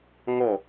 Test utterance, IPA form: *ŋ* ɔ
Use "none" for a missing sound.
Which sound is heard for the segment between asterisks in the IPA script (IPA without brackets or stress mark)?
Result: ŋ